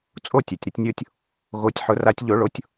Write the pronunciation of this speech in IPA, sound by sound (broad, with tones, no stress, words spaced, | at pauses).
t͡sʼo˥˨tʲø˩tʲɾɪ˩˥tʲnʲo˧tʲ | ɣo˨˩˦tʲħʊ˩˥ ra˨˩˦tʲʎo˨˩˦ɭo˩˥tʲ